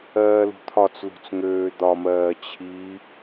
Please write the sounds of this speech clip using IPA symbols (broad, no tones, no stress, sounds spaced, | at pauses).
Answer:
ɜː l ṳ t̪ʰ ɒ t͡s l ṳ t͡s ŋ øː d̪ ɒ m ɜː t͡ɕʰ i